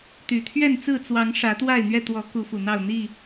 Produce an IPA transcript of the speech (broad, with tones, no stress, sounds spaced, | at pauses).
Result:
t̪ y˨˩ t̪ʰ ɥ ɛ˥˨ n t͡s ɹ̩˥˨ t͡s w ɑ˨˦ ŋ ʂ ä˨˦ t̪ w a˥˨ ɪ̯ n̪ ɥ ɛ˥˨ t̪ w ɔ˨˦ k u˨˦ f u˨˩ n̪ ɑ˥˨ ʊ̯ n̪ i˥˨